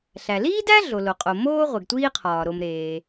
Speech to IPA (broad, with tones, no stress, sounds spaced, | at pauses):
ɬ æ˩ l iː˥ d æ˥ ɮ o˩ l o˩ qʼ o˩ m oː˥ ʁʷ e˩ ɡ tʷ iː˥ qʰ ɒː˩ ɾ o˩ m ɾ eː˩